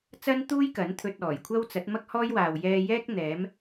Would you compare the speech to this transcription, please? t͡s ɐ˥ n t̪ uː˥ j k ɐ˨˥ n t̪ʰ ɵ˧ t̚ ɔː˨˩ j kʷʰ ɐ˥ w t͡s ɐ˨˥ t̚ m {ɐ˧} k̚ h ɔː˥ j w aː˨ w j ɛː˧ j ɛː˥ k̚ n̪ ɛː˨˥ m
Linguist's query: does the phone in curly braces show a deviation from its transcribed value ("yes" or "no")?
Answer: yes